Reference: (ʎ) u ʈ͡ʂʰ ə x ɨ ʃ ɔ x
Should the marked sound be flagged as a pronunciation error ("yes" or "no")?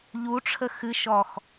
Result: no